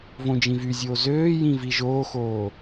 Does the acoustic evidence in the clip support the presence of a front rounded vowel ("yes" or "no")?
yes